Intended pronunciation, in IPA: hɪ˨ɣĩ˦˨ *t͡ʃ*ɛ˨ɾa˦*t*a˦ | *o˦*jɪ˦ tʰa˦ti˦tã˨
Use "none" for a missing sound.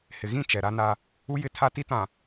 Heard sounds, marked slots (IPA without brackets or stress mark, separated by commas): t͡ʃ, n, u˦